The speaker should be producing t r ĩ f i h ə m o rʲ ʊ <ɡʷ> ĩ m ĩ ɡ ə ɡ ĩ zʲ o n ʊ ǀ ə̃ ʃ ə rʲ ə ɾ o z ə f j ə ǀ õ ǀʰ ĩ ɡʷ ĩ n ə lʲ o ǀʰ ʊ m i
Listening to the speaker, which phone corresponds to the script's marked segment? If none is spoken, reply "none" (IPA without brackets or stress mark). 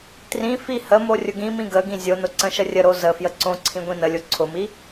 ɡ